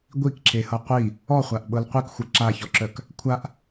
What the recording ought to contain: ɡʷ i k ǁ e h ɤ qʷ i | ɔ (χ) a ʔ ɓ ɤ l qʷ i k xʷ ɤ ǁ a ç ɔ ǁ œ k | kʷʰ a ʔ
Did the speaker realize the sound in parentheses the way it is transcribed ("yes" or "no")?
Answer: no